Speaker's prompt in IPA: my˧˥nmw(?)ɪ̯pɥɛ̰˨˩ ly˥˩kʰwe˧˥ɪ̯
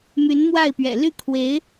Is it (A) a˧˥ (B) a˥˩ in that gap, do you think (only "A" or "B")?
B